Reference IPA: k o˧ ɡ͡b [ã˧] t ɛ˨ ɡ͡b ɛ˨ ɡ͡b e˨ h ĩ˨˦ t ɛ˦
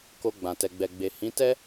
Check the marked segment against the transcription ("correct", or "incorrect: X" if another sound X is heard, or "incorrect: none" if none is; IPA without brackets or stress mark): incorrect: ã˨